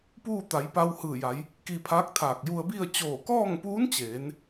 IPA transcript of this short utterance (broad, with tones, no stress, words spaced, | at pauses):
puː˥˨t̪a˩˧j pa˧whɯː˧˩ ja˩˧j | ki˧pʰaː˧˥k̚t̪ʰaː˧˩k̚ ju˧ə̯bi˥˨ə̯ t͡ɕoː˧˩kɔː˥˨ŋpuː˧˥nt͡ɕeː˩˧n